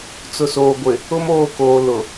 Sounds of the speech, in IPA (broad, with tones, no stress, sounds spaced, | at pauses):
t͡s ʊ˨ s oː˨ ɡʷ ɪ˨ | ʊ˦ m oː˦˨ k oː˨ l ʊ˨